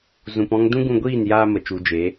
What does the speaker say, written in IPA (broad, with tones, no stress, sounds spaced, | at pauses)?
z ũ˧ p ɔ̃˦ ŋ d ũ˦ ɡ ũ˧ ɡʷ iː˦˨ n j aː˧ m ə˨ t͡ʃ u˨ d͡ʒ e˨˦